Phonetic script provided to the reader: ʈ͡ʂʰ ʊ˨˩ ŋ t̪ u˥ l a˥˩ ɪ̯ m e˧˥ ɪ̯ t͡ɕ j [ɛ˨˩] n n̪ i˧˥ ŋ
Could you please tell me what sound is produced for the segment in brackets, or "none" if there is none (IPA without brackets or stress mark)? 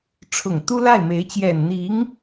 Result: ɛ˨˩